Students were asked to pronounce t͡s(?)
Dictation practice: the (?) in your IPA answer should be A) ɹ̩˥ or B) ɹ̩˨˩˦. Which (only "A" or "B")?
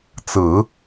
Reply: B